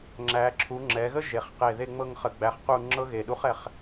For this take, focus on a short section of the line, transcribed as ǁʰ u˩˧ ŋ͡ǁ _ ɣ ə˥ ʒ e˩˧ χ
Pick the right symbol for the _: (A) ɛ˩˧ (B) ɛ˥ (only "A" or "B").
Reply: A